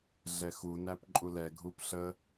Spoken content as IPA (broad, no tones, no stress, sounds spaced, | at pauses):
ɮ ɛ x u n æ p ǃʼ u l ɛ ɡʱ u p ɬ ə